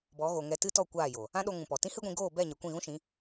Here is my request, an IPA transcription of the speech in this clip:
bɔ˨˦ɣo˨ŋɛ˧ tɨ˦tɔ˦˨ kʷaː˦˨jo˨ | ã˦ɗo˧ŋũ˨ pɔ˨ tĩ˦hɨ˦ɡʷĩ˧ ɡoː˦˨bɛ˦˨ ɲɛ˨kʷĩ˦˨ɣũ˦ʃĩ˨˦

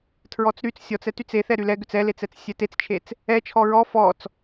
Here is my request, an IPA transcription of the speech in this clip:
tʰɹɔt͡sɾyt͡s sʲɔt͡sɛtyt͡s eθɛ ɾylɛɡʏt͡s ɛlet͡sɛt͡s sʲɛtet͡st͡ʃʰet͡s | ɛt͡ʃʰɔ ɹɔ fɔt͡s

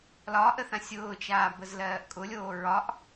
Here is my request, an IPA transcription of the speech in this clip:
lɒʔə θãsʲʊːt͡ʃaː bəzlɜːʔkʼʊlʲoː ɹɒʔ

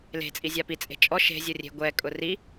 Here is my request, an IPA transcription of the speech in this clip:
le̤t͡sʼi zʲapit͡sʼe̤ t͡ʃʼɔ ʃe̤zʲo rʲe̤ɡʷɛkʼʊ ri

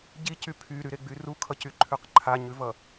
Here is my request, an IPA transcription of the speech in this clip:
ɟicy pʰyɾyɾeɡ͡by rukʰʌcyǃʰʉq ǃʰaɲʉvʌ

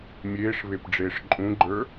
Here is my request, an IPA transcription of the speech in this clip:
mʲeːʂβepɖ͡ʐeːʂ ǃʼũɡ͡ǃə˞

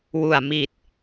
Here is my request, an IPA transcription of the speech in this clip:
wu˨˩a̯ mi˨˩t̚

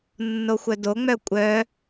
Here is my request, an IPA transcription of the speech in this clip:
nːoxʷœdoŋ͡mœ kʷʼœ

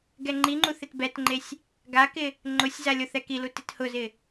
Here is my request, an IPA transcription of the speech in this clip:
ɡɛŋ͡ǃiŋ͡ǃu θɪtbɛtŋ͡ǃesʲ | ɡakɪ | ŋ͡ǃʊsʲza lʲoθɛkilu tɪt hʊzɪ

